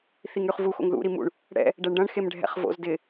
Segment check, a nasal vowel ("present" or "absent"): present